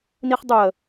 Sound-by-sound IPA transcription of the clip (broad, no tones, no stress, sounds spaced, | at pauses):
n i χ dˤ u ə̯